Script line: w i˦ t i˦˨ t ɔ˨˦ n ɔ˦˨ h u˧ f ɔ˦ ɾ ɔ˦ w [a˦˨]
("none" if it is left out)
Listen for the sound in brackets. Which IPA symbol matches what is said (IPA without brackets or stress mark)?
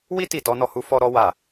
a˦˨